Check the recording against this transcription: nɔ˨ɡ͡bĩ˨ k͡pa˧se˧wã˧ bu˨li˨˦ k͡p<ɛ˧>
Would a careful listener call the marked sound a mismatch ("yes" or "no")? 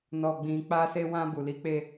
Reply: yes